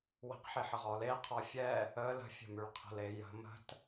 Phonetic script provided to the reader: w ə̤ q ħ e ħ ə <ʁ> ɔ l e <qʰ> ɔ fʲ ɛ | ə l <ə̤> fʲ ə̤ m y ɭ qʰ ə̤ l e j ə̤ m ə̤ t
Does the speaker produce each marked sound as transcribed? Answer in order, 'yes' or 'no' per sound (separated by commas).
yes, yes, yes